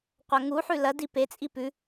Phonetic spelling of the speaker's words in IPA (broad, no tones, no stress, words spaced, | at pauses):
qʷɐŋuħʉ lɐdi pet͡sʼi pʉ